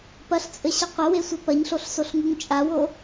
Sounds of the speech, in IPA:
p ɐ ɬ t͡sʼ ɘ ɕ ɐ qʷ ɐ w e sʷ ɘ p ɐ ɲ ɬ o ɬ s o ɬ ŋ u ŋ t͡ʃʼ a w o

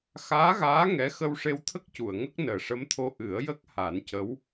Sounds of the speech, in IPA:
x aː˧˥ ɣ aː˧˥ ŋ ɛ˧˥ x ə˧ w ʂ e˧ w t̪ʰ ə˦˥ k̚ c u˨˩˨ ə̯ ŋ ə˦˥ k̚ n əː˨˩ ʂ ə˧˥ m t̪ʰ o˧ ʔ ɨ˨˩˦ ə̯ j ə˦˥ k̚ h a˨˩˦ n c ə˧˥ w

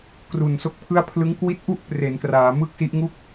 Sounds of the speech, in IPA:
k r u˨˩ n s o˦˥ k̚ pʰ ɯ˥˩ a̯ pʰ l ɯ˦˥ ŋ k w i˦˥ t̚ ʔ u˥˩ ʔ p r e˩˦ n k r aː˩˦ m ɯ˥˩ k̚ s i˦˥ ʔ ŋ u˥˩ k̚

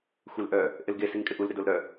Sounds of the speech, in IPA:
xʷ e l ʔ œ | ʔ ɪ l ɡ e s i ŋ kʼ ɪ ʔ u l ɾ ɪ d o l ɾ œ

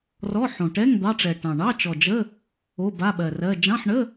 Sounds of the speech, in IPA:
r ɔ˧˥˧ ħ õ˨˩ ʈ ɛ˧˥˧ ŋ d̪ ɑ˧˥˧ ʈ͡ʂ ɛ˨˩ ʈ ɑ̃˨˩ ɳ ɑ˧˥˧ t͡ʃ ɔ˨˩ d͡ʒ ə˧˥˧ | o˧˥˧ b a˧˥˧ ɓ ɜ˨˩ r ɜ˧˥˧ d͡ʒ ɑ̃˧˥˧ ħ ɳ ə˧˥˧

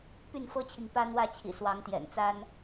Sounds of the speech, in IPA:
p y˥˨ n f ɤ˦ t͡ɕʰ i˨ ŋ p ä˦ n̪ w ä˥˨ t͡ɕʰ ḭ˨˩ s w ɑ˨˦ ŋ t̪ j ɛ̰˨˩ n t͡s a˦ n

